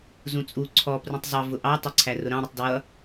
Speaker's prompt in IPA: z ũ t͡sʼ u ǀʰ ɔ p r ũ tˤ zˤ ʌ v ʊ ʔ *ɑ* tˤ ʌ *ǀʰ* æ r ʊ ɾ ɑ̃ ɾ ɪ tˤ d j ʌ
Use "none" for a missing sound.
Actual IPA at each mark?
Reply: ɑ, ǀʰ

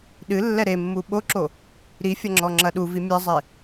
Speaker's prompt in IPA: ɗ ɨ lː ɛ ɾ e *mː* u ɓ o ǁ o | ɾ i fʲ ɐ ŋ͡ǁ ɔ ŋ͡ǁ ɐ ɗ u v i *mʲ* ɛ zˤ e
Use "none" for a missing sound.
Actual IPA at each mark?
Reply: mː, mʲ

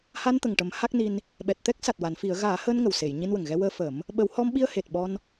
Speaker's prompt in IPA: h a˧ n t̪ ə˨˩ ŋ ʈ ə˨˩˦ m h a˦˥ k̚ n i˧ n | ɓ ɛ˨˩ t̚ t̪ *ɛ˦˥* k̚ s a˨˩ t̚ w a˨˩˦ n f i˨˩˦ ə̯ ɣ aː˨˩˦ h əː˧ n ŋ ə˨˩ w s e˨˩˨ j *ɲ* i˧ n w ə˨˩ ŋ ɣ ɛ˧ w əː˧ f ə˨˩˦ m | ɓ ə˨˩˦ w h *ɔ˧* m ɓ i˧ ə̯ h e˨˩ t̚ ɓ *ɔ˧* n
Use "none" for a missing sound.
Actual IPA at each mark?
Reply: ɛ˦˥, ɲ, ɔ˧, ɔ˧

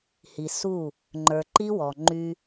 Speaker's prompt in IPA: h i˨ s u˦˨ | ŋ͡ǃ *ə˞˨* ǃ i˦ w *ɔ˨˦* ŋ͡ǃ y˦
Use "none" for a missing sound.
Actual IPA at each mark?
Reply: ə˞˨, ɔ˨

